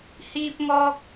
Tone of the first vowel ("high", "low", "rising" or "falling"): high